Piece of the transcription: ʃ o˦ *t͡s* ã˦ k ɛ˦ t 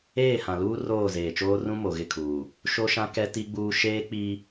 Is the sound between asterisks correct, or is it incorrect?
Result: incorrect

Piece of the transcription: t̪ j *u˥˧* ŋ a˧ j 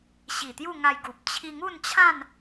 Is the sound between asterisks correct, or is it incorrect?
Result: correct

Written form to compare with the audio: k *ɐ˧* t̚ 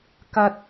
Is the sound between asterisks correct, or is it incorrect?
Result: correct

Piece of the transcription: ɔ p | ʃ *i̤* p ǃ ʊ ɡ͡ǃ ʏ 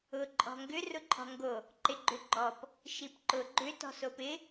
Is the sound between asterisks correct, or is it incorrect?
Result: incorrect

